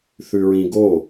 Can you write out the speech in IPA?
θ ʉ ɹ ĩ ɡ o

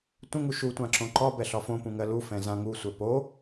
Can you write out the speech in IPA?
tʷ ẽ ŋ u ʃ u tʷ ã ǁ õ ǃ ɒ b ɛ ɬ ɒ f õ p ũ ŋ ɜ l u f ɛ̃ z ã ŋ u sʷ ɛ p o

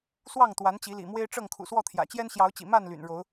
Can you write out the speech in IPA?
s w ɑ˥˨ ŋ t̪ w a˨˦ n t͡ɕ i˨˦ l ḭ˨˩ m w e˦ ɪ̯ ʈ͡ʂ ɤ˥˨ ŋ kʰ ṵ˨˩ s w ɔ˥˨ t̪ʰ j ä̰˨˩ t͡ɕ j ɛ˦ n ɕ j ɑ˨˦ ʊ̯ t͡ɕ ḭ˨˩ m a˥˨ n l y̰˨˩ n ɻ o˨˦ ʊ̯

